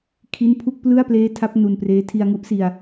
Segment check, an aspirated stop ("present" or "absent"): present